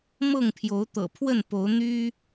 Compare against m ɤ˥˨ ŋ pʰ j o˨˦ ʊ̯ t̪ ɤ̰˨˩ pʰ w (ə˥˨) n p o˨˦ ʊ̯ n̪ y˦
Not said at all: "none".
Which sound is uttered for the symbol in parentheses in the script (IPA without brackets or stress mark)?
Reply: ə˥˨